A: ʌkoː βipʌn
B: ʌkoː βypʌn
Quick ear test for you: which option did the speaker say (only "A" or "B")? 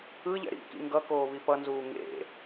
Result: A